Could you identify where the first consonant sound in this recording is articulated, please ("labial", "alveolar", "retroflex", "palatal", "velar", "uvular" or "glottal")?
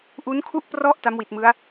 glottal